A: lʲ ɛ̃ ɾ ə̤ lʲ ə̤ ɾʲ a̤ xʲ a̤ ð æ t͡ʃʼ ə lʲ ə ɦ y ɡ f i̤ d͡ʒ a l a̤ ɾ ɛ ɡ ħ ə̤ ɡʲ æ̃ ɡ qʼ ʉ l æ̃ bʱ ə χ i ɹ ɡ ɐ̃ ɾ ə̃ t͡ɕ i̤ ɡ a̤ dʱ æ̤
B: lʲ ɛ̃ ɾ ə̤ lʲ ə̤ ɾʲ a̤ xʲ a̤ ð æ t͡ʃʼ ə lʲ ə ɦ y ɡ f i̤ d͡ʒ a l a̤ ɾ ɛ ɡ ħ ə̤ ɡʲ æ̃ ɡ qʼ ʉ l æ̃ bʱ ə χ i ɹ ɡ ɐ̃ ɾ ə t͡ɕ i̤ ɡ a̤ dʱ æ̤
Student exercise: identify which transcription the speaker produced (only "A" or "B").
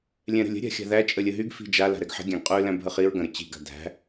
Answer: B